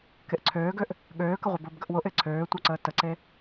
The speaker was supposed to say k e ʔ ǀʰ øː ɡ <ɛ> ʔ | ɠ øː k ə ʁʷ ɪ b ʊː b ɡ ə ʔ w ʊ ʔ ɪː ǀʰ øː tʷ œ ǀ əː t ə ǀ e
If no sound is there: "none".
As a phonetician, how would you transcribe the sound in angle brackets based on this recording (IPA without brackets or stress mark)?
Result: ø